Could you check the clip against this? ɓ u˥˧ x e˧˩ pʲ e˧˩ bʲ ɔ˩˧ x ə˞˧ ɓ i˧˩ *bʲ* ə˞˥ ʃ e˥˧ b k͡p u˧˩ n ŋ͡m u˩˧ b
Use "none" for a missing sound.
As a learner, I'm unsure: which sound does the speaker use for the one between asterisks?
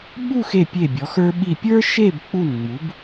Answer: pʲ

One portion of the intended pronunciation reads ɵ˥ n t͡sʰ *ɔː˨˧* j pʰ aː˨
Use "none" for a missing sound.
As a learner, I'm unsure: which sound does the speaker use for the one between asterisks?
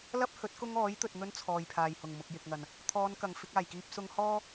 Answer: ɔː˨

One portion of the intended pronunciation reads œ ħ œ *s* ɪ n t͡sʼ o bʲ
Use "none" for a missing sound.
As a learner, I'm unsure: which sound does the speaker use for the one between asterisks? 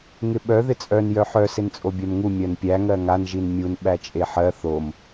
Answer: s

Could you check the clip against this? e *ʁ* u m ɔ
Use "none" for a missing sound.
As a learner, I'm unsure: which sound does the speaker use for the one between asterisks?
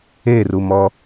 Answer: r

